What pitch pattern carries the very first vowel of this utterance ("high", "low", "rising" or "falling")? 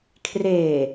low